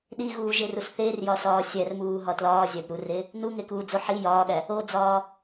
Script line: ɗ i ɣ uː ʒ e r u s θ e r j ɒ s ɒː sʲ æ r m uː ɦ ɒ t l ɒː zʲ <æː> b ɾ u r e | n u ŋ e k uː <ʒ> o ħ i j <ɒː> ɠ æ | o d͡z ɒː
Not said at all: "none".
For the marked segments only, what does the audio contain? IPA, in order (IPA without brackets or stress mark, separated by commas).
æ, d͡z, ɒː